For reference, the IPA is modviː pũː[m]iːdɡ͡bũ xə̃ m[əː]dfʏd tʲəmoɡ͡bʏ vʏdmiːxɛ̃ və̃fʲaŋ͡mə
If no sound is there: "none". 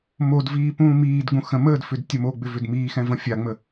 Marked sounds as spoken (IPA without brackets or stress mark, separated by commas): m, əː